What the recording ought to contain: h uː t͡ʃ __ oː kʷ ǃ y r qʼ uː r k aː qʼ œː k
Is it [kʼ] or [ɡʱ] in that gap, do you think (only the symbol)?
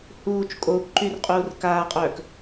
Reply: kʼ